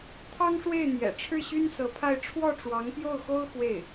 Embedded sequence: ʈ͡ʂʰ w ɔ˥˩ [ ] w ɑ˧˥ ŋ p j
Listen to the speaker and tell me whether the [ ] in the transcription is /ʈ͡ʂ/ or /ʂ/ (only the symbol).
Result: ʈ͡ʂ